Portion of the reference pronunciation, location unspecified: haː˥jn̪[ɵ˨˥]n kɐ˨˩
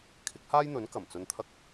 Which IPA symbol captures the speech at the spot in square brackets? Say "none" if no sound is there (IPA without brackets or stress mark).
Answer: ɵ˨˥